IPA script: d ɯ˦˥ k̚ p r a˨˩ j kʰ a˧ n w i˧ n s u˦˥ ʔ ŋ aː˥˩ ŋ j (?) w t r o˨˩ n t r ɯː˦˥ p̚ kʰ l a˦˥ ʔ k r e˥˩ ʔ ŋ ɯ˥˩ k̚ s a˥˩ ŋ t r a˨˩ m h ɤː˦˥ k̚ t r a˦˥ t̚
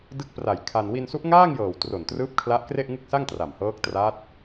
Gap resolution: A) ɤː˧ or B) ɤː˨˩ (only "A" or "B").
B